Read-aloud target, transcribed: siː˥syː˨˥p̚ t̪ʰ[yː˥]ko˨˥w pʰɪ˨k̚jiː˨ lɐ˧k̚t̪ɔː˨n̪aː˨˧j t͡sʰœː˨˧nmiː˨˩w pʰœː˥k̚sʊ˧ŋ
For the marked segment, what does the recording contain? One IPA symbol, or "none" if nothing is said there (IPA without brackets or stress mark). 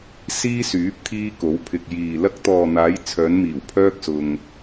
iː˥